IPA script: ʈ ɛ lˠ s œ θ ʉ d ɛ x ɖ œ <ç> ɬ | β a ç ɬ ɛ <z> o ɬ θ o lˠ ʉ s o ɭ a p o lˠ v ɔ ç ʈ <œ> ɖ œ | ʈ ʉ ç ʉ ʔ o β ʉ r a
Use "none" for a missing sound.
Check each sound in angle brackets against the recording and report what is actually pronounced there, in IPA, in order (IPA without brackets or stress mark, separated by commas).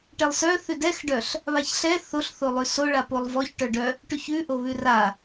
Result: none, θ, œ